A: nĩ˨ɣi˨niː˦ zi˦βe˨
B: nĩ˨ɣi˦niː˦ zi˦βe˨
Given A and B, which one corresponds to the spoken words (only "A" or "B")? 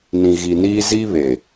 A